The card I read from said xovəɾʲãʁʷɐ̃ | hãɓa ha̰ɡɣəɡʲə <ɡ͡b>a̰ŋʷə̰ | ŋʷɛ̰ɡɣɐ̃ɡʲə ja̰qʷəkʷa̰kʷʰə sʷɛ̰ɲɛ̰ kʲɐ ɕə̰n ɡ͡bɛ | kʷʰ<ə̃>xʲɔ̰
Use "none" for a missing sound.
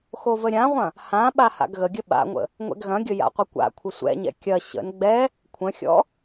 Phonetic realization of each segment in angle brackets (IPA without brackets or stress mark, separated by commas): ɓ, ə̃